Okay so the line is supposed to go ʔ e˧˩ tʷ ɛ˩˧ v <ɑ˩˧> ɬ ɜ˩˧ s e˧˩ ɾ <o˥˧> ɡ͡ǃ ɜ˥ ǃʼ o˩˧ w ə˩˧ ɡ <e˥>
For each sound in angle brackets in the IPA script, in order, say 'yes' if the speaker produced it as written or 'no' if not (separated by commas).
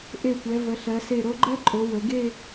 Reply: no, no, no